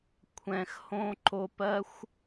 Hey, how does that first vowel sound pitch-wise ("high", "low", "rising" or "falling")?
low